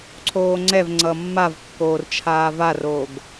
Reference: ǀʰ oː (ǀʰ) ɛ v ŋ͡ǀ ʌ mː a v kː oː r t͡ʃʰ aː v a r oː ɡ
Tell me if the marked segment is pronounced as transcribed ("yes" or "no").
no